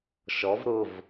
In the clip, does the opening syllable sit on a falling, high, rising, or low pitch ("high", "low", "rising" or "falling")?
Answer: rising